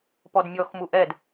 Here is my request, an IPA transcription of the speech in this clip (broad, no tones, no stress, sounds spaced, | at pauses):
p ɔ d mʲ ɔ x m u ʔ ɛ d